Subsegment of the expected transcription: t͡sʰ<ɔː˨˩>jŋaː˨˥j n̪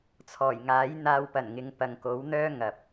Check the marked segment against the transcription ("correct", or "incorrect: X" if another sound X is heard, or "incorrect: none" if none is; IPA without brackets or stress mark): correct